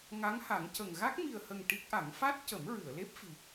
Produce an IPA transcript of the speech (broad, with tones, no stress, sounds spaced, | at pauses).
ŋ a˧˥ ŋ h a˨˩˦ ŋ c ə˨˩ ŋ ɣ a˦˥ k̚ m i˨˩ ə̯ h ə˨˩ ŋ ʈ i˦˥ k̚ ʔ a˨˩˦ ŋ f a˦˥ t̚ c ə˨˩˦ m ɹ ɨ˨˩˨ ə̯ l e˦˥ p̚ f i˨˩